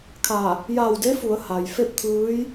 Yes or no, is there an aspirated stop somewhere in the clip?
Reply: yes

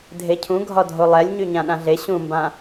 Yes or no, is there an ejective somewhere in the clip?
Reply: no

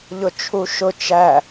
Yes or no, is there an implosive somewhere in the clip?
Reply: no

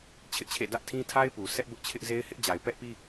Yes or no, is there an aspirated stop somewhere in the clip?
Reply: yes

